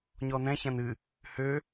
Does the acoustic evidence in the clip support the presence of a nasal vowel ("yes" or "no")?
yes